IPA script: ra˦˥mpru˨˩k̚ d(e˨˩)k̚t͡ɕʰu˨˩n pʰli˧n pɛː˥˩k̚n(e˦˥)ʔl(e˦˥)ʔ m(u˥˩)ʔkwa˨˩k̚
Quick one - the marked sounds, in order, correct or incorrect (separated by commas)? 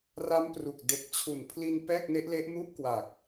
correct, correct, correct, incorrect